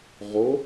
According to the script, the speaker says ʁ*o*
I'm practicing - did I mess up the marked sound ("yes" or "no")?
no